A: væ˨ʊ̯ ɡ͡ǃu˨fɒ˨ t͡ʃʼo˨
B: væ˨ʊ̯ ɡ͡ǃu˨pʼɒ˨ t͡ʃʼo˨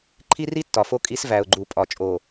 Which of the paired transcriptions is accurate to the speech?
B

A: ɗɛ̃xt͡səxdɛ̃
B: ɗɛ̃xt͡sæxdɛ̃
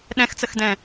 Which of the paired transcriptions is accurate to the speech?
A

